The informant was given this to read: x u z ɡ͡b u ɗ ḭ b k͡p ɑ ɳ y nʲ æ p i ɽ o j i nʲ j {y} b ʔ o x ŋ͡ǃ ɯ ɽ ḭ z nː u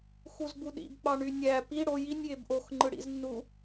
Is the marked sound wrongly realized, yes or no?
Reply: yes